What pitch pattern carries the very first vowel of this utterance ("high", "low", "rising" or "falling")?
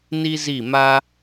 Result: high